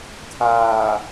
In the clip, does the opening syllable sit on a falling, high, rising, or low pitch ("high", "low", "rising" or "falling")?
low